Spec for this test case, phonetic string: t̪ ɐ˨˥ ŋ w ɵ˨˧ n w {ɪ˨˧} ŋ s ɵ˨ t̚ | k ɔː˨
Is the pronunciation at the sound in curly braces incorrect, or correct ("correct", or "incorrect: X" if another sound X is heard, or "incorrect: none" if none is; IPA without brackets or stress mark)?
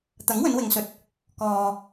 incorrect: ɪ˨